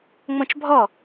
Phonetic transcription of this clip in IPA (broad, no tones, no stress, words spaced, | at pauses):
ŋ͡mõt͡ʃbʱɔ